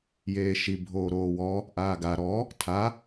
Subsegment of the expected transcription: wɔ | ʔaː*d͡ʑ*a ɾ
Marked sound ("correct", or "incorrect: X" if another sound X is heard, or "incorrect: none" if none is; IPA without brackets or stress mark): incorrect: ɡ